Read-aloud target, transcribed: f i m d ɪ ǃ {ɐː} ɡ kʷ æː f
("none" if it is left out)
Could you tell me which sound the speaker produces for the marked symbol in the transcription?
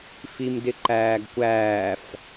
æː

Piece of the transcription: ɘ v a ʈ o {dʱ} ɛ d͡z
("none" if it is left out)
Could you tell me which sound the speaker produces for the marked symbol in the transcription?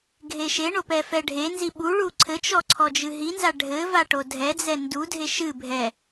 dʱ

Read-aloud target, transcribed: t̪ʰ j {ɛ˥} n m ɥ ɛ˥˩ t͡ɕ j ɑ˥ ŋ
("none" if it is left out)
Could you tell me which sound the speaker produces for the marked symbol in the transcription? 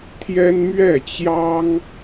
ɛ˥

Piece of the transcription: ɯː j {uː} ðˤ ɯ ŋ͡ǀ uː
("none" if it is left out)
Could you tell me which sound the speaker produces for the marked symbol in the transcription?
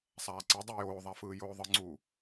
oː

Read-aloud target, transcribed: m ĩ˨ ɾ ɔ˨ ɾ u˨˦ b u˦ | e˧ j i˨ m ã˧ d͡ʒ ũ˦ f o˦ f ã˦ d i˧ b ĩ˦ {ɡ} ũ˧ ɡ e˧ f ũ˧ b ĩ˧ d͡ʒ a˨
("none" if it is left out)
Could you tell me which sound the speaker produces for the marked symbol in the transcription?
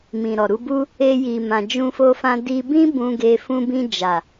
b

